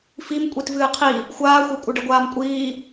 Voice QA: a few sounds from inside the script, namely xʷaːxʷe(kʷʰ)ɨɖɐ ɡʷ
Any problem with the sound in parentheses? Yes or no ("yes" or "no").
yes